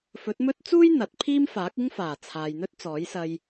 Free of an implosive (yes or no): yes